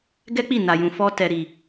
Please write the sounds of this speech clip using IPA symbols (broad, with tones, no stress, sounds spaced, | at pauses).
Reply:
ɡ ɛ˦ k͡p i˦˨ n a˨ j ũ˨ f ɔ˧ t ɛ˨ ɾ i˨